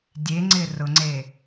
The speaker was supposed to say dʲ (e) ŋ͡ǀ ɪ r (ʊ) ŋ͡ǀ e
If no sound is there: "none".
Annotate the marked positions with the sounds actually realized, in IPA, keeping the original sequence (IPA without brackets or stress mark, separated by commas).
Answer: e, ʊ